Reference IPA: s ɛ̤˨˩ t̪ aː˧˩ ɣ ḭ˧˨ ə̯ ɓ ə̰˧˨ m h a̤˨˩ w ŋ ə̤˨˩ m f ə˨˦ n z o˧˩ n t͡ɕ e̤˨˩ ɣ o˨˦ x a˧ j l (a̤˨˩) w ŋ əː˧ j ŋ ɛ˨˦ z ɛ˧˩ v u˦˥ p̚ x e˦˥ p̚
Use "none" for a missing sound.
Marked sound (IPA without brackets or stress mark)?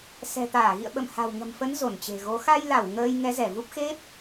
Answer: a˧˩